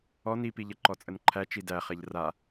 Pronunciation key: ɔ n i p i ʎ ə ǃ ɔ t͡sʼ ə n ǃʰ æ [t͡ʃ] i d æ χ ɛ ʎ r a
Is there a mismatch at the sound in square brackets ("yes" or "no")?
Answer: no